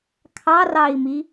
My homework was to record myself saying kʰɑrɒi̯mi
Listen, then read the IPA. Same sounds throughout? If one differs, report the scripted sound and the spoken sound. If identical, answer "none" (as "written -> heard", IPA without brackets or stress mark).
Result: ɒ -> ɑ